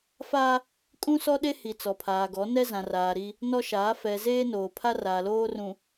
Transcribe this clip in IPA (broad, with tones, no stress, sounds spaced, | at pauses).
f a˦ | kʼ ũ˦ s ɔ˦ ɗ e˦ h i˨ t͡s ɔ˨ pʰ aː˨ ɡ ɔ˨˦ n ɛ˦ z ã˨ r aː˨ ɾ i˦ | n ɔ˦ ʃ aː˨˦ f ɛ˨ z eː˦ n oː˨ pʰ a˦ r aː˨ l oː˦ r ũ˨